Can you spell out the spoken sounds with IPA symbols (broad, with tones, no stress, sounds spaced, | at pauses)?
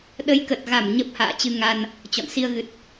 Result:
ɗ ə˨˦ j k ə˨˩ t̚ ɣ a˧˩ m ɲ ə˦˥ p̚ h a̰ː˧˨ t͡ɕ ɨ˧ ŋ a˧ n | t͡ɕ ɔ̰˧˨ n s i˧ ə̯ ɣ ɨ˨˩ t̚